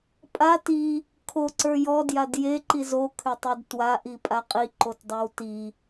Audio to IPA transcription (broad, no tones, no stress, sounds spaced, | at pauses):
pʼ a t i | kʰ o ǀ ə˞ j ɔ d j a d j e ǃ i z o kʰ ʏ tˤ ə˞ d t w a ʔ i pʼ a qʼ i ǃ o t dˤ ə˞ w t i